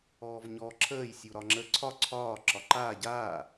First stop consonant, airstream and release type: click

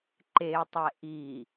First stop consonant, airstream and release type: click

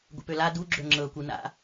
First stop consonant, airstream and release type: plain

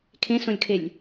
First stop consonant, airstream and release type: aspirated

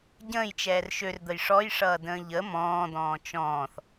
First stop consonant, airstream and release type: plain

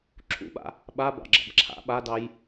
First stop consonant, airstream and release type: click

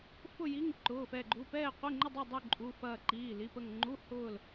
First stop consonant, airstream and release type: click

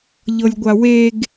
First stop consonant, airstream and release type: plain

